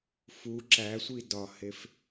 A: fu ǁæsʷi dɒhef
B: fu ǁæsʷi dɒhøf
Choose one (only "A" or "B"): A